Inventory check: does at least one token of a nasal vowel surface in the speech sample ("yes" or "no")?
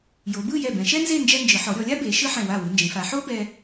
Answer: yes